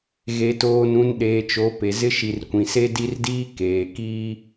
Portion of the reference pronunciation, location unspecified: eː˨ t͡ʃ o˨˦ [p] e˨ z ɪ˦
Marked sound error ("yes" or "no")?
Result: no